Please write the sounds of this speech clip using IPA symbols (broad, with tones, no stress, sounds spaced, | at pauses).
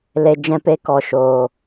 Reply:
l e˧ d͡ʒ ɛ̃˧ p e˧ k ɔ˨ ʃ oː˨